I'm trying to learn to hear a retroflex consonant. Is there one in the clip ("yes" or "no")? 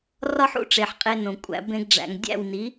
yes